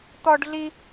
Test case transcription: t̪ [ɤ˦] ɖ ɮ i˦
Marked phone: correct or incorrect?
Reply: incorrect: ɔ˦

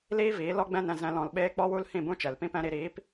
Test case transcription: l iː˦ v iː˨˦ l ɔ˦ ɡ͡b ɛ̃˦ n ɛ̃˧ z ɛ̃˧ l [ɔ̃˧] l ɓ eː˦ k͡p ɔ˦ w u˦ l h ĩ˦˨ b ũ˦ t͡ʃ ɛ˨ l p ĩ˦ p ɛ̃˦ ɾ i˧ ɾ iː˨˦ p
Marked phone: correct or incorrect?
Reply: correct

